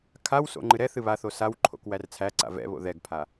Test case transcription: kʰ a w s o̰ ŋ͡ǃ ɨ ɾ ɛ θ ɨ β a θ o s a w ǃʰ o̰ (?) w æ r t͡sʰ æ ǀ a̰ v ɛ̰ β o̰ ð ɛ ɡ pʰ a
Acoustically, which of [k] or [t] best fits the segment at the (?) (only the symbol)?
k